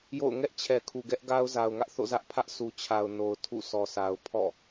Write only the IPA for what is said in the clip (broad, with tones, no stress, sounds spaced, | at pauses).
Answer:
j o̰˦˨ ʊ̯ ŋ ɛ˦ ʔ t͡ɕʰ ɛ˨ kʰ u˨ ɡ ɛ˦ ʔ ɡ a˦ ʊ̯ z a˨ ʊ̯ ŋ ä˦ ʔ θ o̰˦˨ z ä˦ ʔ pʰ ä˦ ʔ s u˨ t͡ɕʰ a˨ ʊ̯ n o˨ ʊ̯ tʰ ṵ˦˨ sʰ ɔ˨ sʰ a˨ ʊ̯ pʰ ɔ̰˦˨